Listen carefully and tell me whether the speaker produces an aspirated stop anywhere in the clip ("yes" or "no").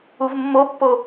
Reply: no